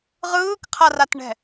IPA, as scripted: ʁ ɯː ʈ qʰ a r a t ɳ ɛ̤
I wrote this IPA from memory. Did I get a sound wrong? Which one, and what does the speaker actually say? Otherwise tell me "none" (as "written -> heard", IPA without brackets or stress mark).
ʈ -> k